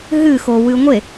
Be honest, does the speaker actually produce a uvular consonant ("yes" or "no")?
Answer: no